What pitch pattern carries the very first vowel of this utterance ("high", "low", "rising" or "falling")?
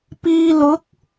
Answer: low